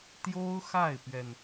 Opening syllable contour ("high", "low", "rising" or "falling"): high